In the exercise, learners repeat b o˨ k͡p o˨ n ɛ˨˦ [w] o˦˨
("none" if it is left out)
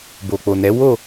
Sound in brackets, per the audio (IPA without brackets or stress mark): w